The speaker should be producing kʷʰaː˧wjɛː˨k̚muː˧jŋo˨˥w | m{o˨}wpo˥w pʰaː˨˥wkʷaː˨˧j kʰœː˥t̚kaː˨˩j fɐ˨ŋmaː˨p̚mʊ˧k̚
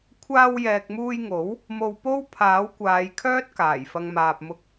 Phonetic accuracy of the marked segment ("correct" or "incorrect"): incorrect